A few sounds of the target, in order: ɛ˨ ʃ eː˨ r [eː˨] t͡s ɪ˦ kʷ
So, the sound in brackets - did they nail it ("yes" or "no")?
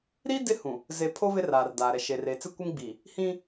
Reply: yes